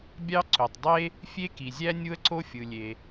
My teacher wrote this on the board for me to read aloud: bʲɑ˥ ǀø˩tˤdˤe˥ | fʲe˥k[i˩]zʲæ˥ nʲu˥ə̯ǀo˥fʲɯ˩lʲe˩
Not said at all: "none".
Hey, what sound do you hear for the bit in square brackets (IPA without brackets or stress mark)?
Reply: i˩